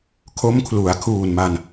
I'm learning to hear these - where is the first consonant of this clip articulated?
velum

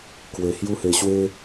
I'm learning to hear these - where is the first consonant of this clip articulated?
velum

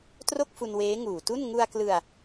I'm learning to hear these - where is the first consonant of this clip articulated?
tongue tip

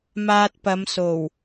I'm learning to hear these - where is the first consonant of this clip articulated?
lips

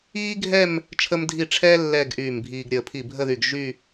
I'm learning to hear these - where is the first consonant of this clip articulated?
velum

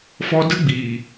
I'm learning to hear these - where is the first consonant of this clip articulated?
lips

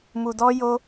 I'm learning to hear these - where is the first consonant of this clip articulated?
lips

